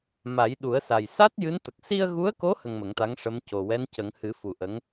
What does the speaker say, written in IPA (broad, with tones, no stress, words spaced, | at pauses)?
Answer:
ma˨˩˦jɗu˨˩˦ə̯sa˨˩j sa˦˥t̚ jɨ˧˥nt̪ə˨˩k̚ si˧ə̯ɣu˧˥ə̯ko˧˥ hə˧ŋmə˨˩˦ŋt̪a˧˥ŋ ʂə˧˥m co˨˩wɛ˧˥ncə˨˩˦ŋ hɨ˨˩˦fu˨˩ ʔə˧˥ŋ